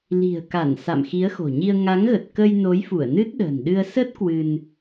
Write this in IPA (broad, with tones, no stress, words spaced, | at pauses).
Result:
li̤˨˩ə̯ka˧˩n sa̰˧˨mxi˨˦ə̯xo̤˨˩ɲi˧ə̯ ŋa˨˦ŋɣə˨˩t̚kə˧j no˨˦jfu˧˩ə̯nɨ˦˥t̚ ɗə̤ː˨˩nɗɨ˧ə̯ sə˦˥t̚ kwɨ˧n